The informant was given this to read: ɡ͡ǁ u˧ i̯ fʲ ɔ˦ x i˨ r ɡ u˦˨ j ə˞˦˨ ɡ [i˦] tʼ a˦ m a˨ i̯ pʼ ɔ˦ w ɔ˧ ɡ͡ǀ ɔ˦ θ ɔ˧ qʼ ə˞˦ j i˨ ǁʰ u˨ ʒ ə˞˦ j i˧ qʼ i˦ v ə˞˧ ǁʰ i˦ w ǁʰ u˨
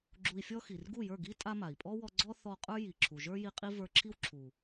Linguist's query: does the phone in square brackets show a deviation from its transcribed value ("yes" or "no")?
no